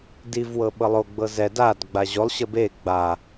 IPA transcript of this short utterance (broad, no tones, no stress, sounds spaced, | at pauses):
d i v w ɤ ɓ ɤ lˠ o ɡ͡b ɤ z ɛ d a d ɡ͡b a ʑ o lˠ ɕ ə b e ɡ͡b a